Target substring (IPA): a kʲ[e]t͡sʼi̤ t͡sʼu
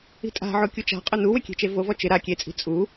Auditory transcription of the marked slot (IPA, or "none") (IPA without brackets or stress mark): e